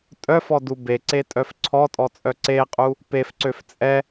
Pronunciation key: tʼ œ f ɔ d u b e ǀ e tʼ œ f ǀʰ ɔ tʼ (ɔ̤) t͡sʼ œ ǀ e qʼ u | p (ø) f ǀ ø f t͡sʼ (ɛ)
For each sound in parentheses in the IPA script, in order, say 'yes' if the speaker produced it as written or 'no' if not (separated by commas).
no, no, yes